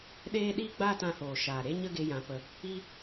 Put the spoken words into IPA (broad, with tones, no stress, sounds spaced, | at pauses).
ɗ eː˦ ɗ iː˦ ɡ͡b aː˦ t ã˧ h oː˨ ʃ aː˨ ɾ e˦ ɲ ə˦ ɡ e˧ j ã˨˦ p ə˧ | i˦